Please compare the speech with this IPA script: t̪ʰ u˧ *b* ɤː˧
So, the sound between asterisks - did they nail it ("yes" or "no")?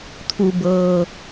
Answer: yes